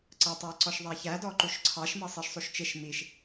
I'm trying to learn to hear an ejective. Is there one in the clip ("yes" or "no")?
no